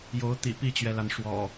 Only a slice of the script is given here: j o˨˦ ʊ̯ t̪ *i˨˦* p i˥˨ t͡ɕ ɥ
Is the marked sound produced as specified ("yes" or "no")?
no